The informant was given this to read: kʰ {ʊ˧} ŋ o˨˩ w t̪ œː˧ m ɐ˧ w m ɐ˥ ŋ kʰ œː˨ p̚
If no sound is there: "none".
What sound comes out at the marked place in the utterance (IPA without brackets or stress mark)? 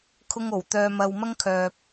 ʊ˧